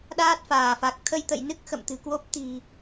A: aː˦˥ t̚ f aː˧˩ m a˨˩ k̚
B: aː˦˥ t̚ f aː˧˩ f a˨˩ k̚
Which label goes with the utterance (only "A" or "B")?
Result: B